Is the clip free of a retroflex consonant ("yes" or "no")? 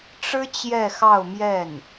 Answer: no